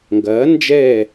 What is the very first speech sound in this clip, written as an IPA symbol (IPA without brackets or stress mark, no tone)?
ŋ